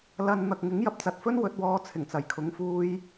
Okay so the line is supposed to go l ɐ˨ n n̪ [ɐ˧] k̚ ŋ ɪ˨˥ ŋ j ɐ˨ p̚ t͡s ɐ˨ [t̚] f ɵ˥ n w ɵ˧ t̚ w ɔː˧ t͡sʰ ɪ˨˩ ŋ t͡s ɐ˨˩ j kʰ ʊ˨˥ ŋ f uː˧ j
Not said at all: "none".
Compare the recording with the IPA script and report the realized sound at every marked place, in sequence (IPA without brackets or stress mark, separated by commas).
ɐ˨, t̚